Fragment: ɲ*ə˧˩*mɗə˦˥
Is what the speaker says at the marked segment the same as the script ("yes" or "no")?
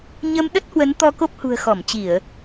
no